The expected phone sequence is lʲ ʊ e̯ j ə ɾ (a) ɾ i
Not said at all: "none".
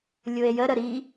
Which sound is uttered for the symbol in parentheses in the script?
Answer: ə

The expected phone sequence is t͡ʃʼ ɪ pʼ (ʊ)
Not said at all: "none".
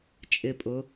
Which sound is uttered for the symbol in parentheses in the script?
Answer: ʊ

